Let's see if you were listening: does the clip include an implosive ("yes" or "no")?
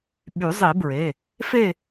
yes